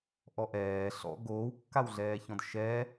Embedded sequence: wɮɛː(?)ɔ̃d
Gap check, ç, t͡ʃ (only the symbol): ç